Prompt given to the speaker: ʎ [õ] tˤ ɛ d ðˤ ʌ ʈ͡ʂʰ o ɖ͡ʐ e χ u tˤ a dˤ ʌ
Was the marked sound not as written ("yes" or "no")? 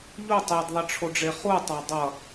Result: yes